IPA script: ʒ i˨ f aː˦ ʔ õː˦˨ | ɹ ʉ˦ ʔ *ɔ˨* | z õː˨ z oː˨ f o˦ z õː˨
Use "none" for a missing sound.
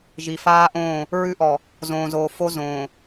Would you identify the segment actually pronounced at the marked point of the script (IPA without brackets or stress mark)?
ɔ˨